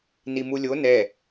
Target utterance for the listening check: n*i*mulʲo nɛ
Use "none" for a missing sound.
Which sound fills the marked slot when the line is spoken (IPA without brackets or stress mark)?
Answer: i